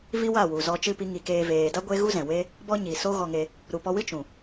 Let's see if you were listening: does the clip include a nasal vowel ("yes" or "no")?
yes